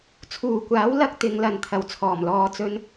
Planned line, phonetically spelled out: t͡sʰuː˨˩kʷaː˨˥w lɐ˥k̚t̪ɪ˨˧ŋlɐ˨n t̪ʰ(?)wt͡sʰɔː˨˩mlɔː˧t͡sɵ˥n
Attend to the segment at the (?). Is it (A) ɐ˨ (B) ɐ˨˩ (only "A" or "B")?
B